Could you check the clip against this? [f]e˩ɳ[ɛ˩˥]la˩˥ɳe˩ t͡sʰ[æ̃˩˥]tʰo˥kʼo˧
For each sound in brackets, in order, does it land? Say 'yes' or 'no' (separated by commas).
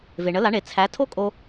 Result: no, no, no